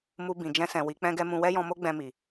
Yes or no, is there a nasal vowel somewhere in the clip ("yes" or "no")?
yes